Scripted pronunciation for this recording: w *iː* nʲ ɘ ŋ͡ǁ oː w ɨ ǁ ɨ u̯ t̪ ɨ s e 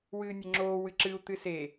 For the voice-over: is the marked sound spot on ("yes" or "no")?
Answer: no